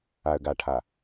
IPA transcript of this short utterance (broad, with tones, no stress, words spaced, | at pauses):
a˨ə̯ɡa˨ʈʰa˨